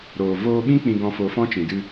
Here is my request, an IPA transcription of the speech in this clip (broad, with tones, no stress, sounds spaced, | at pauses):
ɾ oː˨ v oː˧ ɓ ĩ˦ k͡p ĩ˧ ɡ ɔ̃˧ f o˧ f ɔ̃˦ t͡ʃ ĩ˨ d ɨ˧